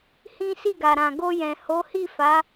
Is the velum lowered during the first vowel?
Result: yes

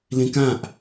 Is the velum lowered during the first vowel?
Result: yes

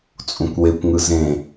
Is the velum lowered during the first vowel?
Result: yes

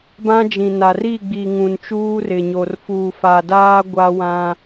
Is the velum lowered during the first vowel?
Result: yes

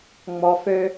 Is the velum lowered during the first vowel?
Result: no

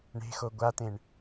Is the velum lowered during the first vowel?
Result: no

